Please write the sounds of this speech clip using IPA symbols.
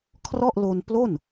kʰ r ɔ˥˩ ʔ l o˧ n p l o˥˩ n

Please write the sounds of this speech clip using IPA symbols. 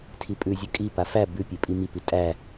tʰ i pʼ ʉ zʲ ʉ kʼ i p a f æ b ʉ pʲ e pʼ i m i p i tʼ æ

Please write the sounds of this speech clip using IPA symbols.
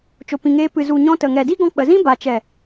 t͡ʃ o˨ p ĩ˨ ŋ eː˧ p ɨ˨ z u˨ ɲ ɔ̃˧ t ə˨ ŋ ɛ˨ d i˦ ɡ ɔ̃˧ k͡p ə˨ z ĩ˦ b a˨ t͡ʃ ɛ˨

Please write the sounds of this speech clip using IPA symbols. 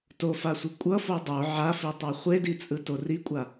t o f a sʷ ɯ kʷʼ ʌ f o dˤ o ʕ a f i tˤ a χʷ e d i t͡sʼ ɯ t o r i kʷʼ a

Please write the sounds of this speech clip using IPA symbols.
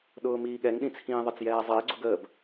ɗ ʊː m iː ɠ ɛ ŋ ɗ ĩ t͡sʰ ĩː ðˤ ə t͡s j ɛː zˤ ɪː ɡ͡ǀ ʊ ɡ əː b

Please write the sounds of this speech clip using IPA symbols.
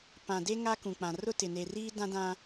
p ã˨ d e˦ ŋ a˦ k ũ˨ k͡p ã˨ r ʊ˦ t ɪ˨ n e˨ r iː˦ d ã˦ d ã˦

